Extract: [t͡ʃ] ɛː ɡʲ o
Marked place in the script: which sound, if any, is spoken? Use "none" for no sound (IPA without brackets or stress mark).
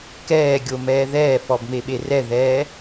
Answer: k